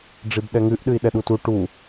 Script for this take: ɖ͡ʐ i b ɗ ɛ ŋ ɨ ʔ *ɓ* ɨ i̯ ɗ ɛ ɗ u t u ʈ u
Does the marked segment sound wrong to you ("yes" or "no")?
yes